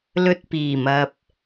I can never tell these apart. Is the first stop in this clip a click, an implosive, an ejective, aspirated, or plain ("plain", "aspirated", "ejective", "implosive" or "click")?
plain